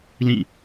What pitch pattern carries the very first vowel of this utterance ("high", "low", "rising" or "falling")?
falling